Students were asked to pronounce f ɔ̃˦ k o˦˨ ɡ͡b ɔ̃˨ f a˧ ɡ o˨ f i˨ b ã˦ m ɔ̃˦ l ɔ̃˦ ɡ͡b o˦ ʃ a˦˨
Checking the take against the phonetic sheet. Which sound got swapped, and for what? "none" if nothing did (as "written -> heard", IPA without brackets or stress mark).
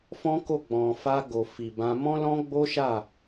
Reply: ã˦ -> ã˧